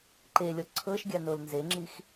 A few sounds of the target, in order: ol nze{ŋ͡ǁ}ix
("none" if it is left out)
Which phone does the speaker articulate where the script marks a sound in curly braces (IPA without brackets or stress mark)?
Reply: ŋ͡ǁ